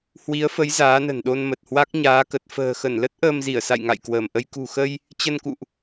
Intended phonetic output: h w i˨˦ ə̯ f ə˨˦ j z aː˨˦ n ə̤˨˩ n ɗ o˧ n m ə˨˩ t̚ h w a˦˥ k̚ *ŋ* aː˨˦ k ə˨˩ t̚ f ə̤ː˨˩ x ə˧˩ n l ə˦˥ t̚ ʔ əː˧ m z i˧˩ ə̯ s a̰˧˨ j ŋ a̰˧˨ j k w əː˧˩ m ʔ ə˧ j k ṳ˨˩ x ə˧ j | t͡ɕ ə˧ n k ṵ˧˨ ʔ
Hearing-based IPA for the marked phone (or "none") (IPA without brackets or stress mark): ɲ